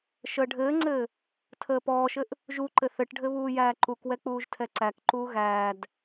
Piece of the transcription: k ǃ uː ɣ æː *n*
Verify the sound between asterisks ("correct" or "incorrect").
incorrect